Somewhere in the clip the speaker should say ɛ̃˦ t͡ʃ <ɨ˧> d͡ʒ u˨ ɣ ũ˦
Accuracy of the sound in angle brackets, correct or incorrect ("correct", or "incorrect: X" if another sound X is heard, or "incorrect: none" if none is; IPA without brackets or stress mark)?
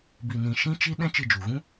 correct